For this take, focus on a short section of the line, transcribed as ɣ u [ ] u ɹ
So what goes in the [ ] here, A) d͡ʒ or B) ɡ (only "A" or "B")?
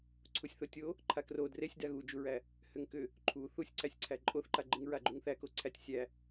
A